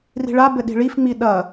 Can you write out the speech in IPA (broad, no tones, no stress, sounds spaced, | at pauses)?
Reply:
r i̤ ɭ a b ɘ ɗ i̤ ɭ i f ŋ͡m i ɗ ɐ